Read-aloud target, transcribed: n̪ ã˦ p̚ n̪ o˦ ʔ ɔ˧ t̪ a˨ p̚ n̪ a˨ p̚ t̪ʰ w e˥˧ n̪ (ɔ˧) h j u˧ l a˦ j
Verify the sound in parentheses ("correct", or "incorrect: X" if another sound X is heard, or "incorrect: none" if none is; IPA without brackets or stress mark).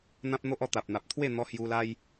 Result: correct